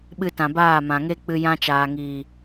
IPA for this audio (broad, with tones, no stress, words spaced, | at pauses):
ɓɨ˧tã˨baː˦˨ mã˨ŋe˦k͡pɨ˧ jã˧t͡ʃaː˨ŋiː˨